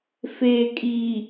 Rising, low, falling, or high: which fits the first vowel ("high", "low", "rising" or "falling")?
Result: low